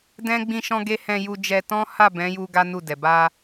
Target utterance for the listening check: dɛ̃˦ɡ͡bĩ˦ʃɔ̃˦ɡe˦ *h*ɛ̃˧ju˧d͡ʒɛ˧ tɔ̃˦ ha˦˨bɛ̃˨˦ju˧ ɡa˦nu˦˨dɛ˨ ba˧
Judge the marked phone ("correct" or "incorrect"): correct